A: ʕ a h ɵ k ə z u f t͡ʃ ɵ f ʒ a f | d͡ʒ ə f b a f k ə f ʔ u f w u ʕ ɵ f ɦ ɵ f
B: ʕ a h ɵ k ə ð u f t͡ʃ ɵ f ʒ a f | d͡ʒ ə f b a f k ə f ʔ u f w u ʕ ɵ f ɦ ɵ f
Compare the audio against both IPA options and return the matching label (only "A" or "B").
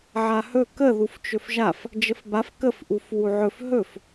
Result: B